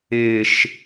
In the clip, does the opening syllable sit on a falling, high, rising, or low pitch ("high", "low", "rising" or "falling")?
falling